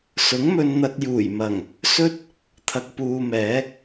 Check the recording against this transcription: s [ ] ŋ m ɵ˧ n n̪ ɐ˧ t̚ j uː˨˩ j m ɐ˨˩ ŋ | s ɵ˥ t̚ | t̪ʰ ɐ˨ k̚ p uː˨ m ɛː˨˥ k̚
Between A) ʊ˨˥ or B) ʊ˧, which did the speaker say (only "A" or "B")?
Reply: A